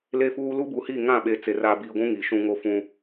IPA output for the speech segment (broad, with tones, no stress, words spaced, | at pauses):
le˦fuː˦ lu˦bu˨hi˦˨ ŋã˦˨ɓe˨ t͡se˨r a˨biː˨ɡʷũ˦ ŋi˨ʃũ˦ ŋo˦fũ˦